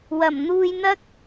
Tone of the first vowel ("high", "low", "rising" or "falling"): low